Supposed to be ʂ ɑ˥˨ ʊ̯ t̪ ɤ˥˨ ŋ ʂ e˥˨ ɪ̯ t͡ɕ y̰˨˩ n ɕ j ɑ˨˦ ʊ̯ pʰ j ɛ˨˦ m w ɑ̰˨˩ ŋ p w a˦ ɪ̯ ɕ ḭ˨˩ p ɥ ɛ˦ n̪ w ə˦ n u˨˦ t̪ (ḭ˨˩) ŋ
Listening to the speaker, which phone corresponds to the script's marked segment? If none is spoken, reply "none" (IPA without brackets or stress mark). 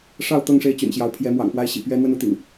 ḭ˨˩